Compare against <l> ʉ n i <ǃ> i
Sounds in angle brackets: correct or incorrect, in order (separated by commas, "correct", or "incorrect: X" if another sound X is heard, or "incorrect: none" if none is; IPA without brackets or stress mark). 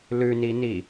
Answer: correct, incorrect: n